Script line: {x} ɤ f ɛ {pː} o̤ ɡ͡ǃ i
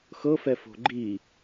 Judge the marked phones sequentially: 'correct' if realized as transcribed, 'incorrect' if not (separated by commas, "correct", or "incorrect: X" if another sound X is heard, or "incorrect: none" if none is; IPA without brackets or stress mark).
correct, incorrect: f